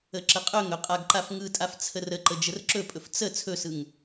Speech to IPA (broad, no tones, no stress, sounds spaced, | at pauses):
ə ǁ ə qʼ ɵ ŋ ɵ qʼ a ɡ ǃ a f ŋ ɯ tʼ a f t͡sʰ ə r ə ǃ ə d͡ʒ ə r ǁ ɵ pʼ ɵ f t͡s ə t͡sʰ ɵ s ɯ ŋ